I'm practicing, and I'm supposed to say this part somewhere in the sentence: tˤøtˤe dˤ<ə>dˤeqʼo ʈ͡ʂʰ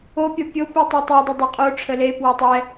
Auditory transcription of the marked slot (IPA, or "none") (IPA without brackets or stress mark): ə